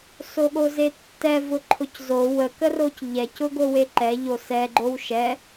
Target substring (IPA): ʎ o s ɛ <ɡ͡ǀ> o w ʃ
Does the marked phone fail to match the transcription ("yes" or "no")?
yes